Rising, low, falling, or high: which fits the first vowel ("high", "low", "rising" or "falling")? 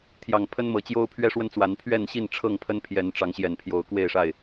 low